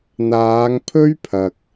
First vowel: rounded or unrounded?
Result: unrounded